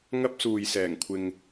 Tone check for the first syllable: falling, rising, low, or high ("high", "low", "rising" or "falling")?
high